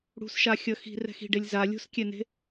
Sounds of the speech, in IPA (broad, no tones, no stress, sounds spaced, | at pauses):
ɽ ṳ s ʃ a xʲ ʌ x i̤ r ɛ̤ x i̤ ɖ e lʲ z a lʲ o̤ s kʲ ɛ n e̤